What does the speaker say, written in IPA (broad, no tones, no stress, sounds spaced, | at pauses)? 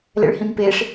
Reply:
l ɛ̰ ɭ h ĩ m p e ʂ